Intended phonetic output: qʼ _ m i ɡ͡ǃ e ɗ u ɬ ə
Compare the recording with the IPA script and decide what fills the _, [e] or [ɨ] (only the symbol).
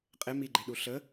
e